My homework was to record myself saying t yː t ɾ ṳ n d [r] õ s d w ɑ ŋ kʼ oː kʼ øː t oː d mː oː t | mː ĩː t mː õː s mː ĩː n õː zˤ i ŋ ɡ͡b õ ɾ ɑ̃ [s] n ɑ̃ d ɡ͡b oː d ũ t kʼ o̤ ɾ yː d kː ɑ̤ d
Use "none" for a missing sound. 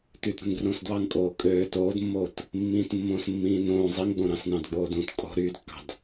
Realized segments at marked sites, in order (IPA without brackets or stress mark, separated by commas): r, s